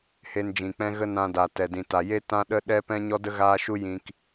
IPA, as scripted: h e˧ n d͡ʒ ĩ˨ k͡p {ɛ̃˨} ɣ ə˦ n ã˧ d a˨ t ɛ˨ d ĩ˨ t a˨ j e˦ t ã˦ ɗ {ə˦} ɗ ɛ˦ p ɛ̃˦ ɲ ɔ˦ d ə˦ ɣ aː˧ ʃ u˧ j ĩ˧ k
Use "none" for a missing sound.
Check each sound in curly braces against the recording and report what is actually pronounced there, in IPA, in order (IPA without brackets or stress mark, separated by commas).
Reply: ɛ̃˦, ə˦